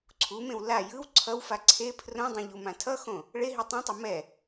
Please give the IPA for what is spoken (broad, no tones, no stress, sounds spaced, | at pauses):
ǀʰ u m ẽ w l a j ɯ w ǀʰ ʌ w f a ǀʰ e pʰ r õ dˤ ẽ ʎ u m ã tʰ ʌ x õ | ɭ e ɦ i tˤ ũ tˤ ʌ m ɛ